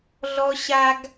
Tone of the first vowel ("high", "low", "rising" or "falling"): high